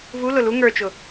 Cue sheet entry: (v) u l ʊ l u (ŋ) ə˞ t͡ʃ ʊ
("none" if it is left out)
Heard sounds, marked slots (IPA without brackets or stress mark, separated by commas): v, ŋ